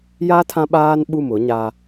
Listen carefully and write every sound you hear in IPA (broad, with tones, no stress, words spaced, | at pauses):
ja˦ tʰã˦ɓaː˦n ɓu˦˨mʊ˨˦ɲa˦